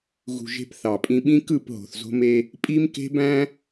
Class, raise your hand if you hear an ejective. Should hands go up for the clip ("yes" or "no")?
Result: yes